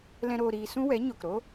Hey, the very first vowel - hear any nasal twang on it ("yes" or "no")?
yes